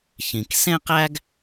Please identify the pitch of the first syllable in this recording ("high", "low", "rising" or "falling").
low